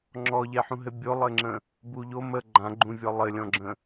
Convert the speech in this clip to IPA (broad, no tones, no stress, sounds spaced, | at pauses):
ŋ͡ǁ ɔ ʎ ɛ ħ ũ ɦ ɘ bʲ o lˠ ɘ ŋ͡ǁ ə̃ | b u ʎ o m ə ɡ͡ǃ ã ɡ͡ǃ ũ vʲ ɔ lˠ ɘ lʲ ɔ̃ ɡ͡ǁ ə̃